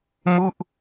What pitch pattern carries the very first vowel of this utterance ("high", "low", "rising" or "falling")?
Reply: falling